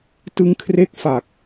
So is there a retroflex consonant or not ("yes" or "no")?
no